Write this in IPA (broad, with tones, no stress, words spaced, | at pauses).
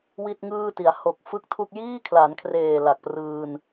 wi˥˩t̚ŋɯː˥˩ti˩˦a̯ ho˨˩k̚ fɯ˥˩k̚tʰu˥˩k̚ jiː˥˩kʰla˩˦nkʰreː˨˩ la˨˩k̚prɯː˧n